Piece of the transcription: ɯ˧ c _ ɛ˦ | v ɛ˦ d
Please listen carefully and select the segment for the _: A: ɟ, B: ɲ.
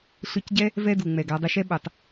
A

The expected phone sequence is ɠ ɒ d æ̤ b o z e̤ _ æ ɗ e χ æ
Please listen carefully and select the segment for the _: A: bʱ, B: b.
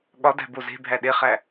A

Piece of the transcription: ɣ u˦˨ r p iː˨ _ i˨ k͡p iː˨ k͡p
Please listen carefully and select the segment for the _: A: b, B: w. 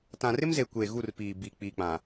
A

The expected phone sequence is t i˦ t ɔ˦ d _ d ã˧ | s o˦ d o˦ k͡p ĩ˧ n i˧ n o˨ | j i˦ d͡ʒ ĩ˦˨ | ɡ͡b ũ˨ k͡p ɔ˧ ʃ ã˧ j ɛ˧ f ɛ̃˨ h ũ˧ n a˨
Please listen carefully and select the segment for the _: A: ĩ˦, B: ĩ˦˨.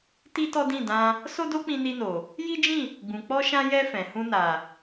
B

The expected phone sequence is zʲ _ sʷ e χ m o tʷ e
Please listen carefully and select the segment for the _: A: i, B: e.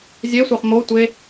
B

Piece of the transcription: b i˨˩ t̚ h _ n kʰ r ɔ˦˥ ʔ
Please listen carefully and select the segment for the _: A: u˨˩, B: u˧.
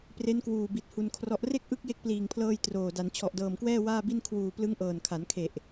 B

